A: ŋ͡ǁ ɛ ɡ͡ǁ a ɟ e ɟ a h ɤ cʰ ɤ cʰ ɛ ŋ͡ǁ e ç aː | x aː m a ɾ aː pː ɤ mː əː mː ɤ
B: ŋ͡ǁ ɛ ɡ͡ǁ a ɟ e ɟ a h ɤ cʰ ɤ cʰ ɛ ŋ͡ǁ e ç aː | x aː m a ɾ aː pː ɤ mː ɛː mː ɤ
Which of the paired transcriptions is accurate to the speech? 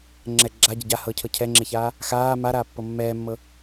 B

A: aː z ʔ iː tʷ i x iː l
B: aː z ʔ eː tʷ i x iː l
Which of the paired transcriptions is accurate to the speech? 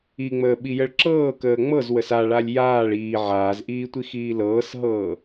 A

